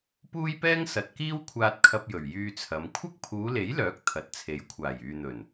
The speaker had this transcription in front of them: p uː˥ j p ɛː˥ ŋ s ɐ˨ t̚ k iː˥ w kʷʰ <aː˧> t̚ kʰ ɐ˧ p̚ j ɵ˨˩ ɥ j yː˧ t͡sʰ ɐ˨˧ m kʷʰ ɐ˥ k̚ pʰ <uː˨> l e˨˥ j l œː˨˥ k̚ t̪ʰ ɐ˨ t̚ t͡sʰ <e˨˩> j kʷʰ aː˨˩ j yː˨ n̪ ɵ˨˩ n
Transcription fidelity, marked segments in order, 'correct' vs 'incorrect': correct, incorrect, incorrect

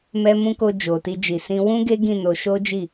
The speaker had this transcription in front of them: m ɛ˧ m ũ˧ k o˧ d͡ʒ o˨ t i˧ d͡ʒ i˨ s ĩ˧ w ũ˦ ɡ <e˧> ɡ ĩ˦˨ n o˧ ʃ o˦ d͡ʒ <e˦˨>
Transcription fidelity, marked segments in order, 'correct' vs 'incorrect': incorrect, incorrect

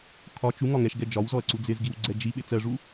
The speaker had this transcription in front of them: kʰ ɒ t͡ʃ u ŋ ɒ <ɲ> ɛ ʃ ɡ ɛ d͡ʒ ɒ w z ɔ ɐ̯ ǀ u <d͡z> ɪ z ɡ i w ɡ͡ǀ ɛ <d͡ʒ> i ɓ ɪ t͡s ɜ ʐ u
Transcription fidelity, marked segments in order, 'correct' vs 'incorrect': incorrect, correct, correct

